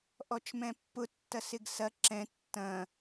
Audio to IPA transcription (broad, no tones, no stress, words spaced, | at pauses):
ʔɔt͡ʃmɛ̃pːʊ tːɐsɪɡsɐ ǁɛ̃ tːɐ̃